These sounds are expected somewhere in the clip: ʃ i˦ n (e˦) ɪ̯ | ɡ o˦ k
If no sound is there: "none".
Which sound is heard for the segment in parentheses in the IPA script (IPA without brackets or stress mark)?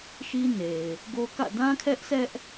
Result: e˨